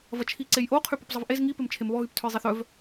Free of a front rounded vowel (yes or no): no